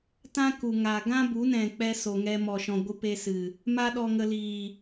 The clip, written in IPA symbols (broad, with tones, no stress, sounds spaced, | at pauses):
t ã˦ k u˨ ŋ aː˨ ɡ ã˦ b u˨˦ n ɛ̃˨ k͡p ɛ˧ s o˨ ŋ ɛ˧ m ɔ˨ ʃ ɔ̃˨ ɡʷ ɨ˧ p e˧ s ɨ˨ | m a˦ ɗ ɔ˧ ŋ ə˧ l iː˨